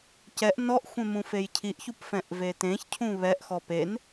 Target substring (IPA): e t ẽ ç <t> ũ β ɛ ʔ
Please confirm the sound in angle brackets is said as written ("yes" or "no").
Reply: no